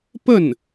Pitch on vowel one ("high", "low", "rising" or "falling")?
falling